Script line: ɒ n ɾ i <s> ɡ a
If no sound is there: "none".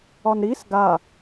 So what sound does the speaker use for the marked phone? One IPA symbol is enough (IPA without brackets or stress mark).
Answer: s